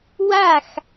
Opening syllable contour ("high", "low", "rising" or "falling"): falling